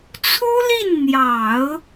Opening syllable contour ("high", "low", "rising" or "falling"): high